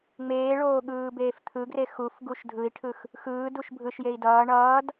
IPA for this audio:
ŋ͡m eː ɭ oː ɠ ɯː b eː f t̪ʰ ɯ ɡ r e x u f ɡ u ʃ dʱ ɯ i̯ ʈʰ ɯ x | x ɯː d u ʃ bʱ ɯ ʃ j e i̯ d ʌː ɳ ʌː d

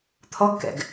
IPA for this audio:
t̪ʰ ɔ ɡ k ɛ̰ ɡ

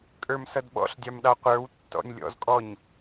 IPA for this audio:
kʼ ə˞ m s ʌ d ɓ ɔ̰ ɬ dʲ ɑ m ɗ ɑ qʷ ə˞ w tː ɔ̰ nʲ lʲ ɔ̰ z kʼ ɔ ɲ

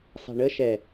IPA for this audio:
s ɑ̤ ɳ ə ʃ ɛ

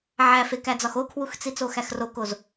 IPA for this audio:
ʕ æ f e k æ d͡z ɒ x o kʰ w u x t͡s i t͡s o x æ x r o k o z

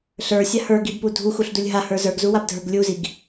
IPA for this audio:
ɬ ə˞ sʲ a h ə˞ ɡ i b p u dʱ u x u ɬ d u lʲ ɦ a h ə˞ z ə˞ ɡ z u w a b dʱ ə˞ ɡ lʲ u z i ɡ

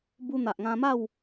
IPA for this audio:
b u˧ n̪ a˨ ʔ ŋ ã˧ m a˥˧ w

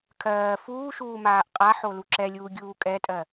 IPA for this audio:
kʰ ɜː f uː ʃ uː m aː ʔ qʼ a ħ o l u ǁ ɛ lʲ uː ɡʲ uː kʼ ɛ tʼ ɜ

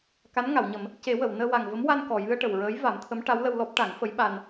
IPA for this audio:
k a˧˥ n ŋ a˨˩˨ w ɲ ə˨˩˦ m | c e˨˩˦ w ə˨˩˨ w n əː˧ w a˨˩ ŋ v ə˧˥ m w a˧ n k ɔ˨˩ j ɨ˧ ə̯ ʈ ə˨˩ w ɹ əː˧˥ j v a˨˩˦ m t̪ʰ ə˧˥ m ʈ a˧˥ w l ə˧ w l ɔ˦˥ p̚ ʈ a˨˩˦ ŋ f ə˧˥ j ɓ a˧ n

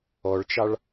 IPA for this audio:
ɔ ɭ t͡ʃ ɑ ɭ

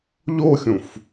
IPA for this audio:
ʎ o xʲ ũ f

